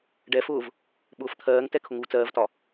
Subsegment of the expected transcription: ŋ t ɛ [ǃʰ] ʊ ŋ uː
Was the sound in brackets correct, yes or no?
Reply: no